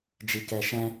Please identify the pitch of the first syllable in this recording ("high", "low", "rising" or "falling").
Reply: low